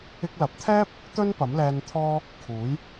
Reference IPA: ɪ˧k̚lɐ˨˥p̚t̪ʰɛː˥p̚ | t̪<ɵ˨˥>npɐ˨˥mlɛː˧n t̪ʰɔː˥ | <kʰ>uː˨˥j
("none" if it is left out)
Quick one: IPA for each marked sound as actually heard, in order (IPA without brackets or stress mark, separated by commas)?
ɵ˥, kʰ